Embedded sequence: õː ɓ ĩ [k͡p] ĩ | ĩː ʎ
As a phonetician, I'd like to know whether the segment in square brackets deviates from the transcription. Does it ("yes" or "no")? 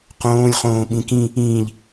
yes